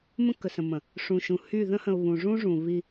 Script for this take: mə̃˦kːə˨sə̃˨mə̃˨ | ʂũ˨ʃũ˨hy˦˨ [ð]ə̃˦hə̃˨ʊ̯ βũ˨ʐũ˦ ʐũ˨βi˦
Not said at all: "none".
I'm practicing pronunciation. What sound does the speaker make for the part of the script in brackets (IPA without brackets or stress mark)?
ð